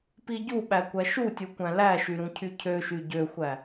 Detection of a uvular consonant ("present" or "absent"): absent